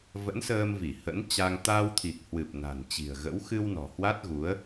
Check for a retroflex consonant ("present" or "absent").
absent